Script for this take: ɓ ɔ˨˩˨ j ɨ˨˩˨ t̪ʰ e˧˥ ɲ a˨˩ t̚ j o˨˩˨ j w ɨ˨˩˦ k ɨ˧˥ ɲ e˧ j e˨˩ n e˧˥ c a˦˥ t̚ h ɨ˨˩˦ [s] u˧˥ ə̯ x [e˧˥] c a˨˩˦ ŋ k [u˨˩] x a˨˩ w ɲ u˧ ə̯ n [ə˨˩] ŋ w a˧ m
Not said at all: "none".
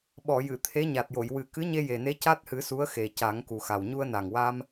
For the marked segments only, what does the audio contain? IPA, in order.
s, e˨˩, u˨˩, a˨˩

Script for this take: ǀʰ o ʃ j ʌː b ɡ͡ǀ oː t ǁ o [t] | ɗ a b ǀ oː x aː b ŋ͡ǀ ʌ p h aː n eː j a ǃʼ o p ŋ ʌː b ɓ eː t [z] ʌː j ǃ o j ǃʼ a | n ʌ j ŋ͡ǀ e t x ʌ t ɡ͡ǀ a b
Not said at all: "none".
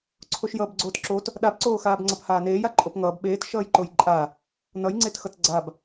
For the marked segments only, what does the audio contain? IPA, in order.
t, ʃ

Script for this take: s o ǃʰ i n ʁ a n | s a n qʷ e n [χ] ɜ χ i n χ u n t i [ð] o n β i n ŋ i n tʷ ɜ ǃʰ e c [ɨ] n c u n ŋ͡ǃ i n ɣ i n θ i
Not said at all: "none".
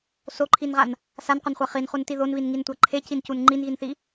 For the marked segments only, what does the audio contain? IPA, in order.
χʷ, ð, i

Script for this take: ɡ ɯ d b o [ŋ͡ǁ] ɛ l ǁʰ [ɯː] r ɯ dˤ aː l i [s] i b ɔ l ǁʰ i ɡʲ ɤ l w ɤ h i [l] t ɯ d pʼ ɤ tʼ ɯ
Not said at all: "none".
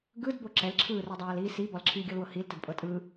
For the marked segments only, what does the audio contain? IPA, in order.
ǁ, ɯː, s, l

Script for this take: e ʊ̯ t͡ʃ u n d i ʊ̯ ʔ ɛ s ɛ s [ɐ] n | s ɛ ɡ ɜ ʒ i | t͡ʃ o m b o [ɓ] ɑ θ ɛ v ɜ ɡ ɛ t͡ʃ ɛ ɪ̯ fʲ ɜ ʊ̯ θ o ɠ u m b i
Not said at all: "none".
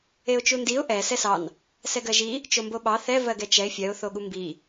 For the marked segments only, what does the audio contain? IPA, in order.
ɑ, ɓ

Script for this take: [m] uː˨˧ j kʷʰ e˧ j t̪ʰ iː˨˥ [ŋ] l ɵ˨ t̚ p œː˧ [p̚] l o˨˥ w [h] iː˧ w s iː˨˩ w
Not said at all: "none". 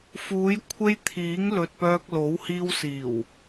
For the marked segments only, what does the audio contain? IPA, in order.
f, ŋ, k̚, h

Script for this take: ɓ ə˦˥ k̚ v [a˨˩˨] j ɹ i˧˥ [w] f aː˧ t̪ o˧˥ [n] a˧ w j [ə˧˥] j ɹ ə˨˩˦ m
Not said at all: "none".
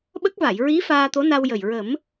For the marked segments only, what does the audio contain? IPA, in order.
a˨˩˨, none, n, ə˨˩

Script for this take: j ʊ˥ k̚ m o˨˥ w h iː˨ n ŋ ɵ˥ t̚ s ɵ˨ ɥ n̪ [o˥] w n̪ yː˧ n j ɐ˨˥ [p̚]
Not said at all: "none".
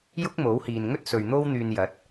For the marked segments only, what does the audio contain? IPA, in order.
o˥, t̚

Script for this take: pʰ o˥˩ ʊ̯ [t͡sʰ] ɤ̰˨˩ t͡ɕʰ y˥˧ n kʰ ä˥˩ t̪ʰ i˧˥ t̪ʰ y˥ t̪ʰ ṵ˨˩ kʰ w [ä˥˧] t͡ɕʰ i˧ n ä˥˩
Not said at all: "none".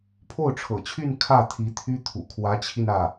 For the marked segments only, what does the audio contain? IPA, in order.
ʈ͡ʂʰ, ä˧˥

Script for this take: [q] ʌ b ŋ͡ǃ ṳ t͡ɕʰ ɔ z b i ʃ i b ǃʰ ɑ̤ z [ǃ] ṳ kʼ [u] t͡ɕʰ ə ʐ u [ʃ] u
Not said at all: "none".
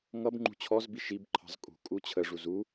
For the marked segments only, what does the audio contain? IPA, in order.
ŋ, kʼ, u, z

